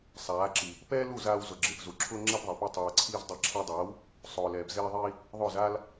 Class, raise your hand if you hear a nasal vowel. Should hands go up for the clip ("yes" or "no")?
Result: no